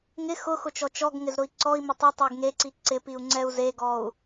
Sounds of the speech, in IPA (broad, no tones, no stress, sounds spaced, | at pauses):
ŋ ɪ x ʊ x ʊ t͡ʃ ɔ t͡ʃ ɔ ɡ ŋ ɪ z ɾ ʊ i̯ ǀ ɔ i̯ m ɪ tˤ ɪ tˤ e ɡ ŋ e ǀ i ǀ ɪ p i u̯ ŋ͡ǀ ɛ u̯ z e ɡ ɔ u̯